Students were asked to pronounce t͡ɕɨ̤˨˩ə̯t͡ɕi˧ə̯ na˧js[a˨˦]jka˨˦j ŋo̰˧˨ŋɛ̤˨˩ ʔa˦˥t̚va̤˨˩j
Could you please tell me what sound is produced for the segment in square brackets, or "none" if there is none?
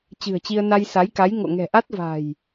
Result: a˨˦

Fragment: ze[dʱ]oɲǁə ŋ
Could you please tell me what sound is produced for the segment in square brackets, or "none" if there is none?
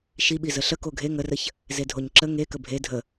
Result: dʱ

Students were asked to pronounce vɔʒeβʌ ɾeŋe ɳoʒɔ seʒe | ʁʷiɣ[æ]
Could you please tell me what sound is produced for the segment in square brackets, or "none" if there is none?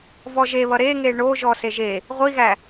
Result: æ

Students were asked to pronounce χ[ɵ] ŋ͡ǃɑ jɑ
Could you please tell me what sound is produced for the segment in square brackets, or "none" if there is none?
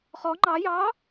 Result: ɔ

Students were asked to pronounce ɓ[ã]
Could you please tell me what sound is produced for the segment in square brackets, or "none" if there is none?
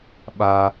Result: a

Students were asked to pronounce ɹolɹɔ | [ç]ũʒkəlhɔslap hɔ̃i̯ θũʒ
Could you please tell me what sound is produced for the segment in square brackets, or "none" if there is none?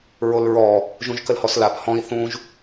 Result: ʒ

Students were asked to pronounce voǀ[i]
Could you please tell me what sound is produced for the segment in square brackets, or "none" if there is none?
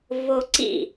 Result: ḭ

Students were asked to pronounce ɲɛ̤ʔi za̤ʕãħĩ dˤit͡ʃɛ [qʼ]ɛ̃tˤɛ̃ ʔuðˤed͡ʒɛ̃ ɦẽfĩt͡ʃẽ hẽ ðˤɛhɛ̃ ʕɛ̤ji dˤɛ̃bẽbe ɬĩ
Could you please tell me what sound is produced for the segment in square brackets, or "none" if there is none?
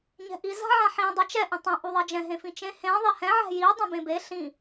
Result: ʔ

